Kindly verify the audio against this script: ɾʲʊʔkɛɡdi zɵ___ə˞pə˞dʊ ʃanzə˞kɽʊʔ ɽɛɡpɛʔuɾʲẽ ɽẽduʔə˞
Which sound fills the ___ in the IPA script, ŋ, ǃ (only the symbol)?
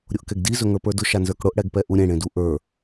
ŋ